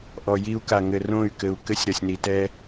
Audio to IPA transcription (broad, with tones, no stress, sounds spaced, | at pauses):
ʔ ɔ˨ j i˦ u̯ k a˨ ŋ ɘ˨ r õ˦˨ y̯ k ɘ˨ u̯ k ɘ˦ sʲ ɾ ɐ˨ sʲ n i˨ t ɛ˦